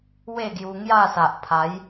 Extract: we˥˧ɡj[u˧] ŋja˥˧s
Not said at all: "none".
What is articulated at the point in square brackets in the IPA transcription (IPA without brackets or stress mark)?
u˧